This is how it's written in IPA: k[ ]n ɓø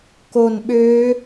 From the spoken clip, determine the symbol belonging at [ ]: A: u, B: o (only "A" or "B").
B